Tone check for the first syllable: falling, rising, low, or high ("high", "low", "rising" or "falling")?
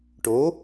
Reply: rising